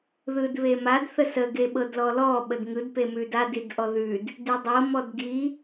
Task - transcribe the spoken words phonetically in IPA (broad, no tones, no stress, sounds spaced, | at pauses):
ð ɯ d β e m a d θ ə s ə ɡ e ɓ ɤ d l ɔ l ɔ ɓ ə d ŋ ɯ d p e m ʉ d a d i d ʔ ɔ ð ʉ d | d ʉ dˤ ɤ m ɔ d ɡ i